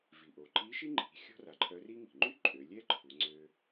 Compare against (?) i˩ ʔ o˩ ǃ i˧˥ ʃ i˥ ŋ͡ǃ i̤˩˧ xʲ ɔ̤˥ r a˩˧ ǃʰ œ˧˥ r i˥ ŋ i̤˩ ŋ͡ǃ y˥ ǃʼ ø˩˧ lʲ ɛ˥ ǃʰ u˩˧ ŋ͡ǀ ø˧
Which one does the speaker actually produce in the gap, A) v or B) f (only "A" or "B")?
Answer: A